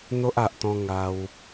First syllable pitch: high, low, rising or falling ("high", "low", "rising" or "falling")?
high